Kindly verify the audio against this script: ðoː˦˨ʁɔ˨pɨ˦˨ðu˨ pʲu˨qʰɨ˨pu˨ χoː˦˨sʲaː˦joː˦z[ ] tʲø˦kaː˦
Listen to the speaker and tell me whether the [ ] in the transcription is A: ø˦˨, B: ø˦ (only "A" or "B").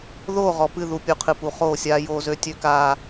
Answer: B